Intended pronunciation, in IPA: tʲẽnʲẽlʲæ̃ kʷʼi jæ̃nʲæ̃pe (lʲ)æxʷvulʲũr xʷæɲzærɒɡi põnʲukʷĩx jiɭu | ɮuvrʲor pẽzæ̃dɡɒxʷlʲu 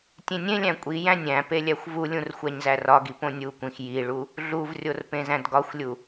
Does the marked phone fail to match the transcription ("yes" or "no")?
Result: no